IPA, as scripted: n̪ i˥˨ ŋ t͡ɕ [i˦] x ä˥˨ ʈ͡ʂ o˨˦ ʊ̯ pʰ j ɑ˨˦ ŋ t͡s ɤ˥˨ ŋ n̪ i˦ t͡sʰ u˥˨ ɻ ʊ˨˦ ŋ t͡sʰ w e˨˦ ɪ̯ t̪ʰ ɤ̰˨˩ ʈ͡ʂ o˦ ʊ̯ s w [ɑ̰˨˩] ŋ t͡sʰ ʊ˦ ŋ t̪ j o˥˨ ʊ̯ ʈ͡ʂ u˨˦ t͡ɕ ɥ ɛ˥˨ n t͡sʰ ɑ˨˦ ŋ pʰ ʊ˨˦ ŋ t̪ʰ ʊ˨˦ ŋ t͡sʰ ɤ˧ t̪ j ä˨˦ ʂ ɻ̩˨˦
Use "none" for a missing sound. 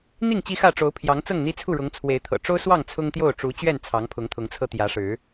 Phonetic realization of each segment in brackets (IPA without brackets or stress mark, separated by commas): i˦, ɑ˥˨